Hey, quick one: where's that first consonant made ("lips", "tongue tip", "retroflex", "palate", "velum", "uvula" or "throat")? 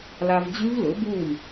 tongue tip